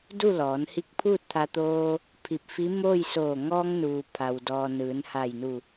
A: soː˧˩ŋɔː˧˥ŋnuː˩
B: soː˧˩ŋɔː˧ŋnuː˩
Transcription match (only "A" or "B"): B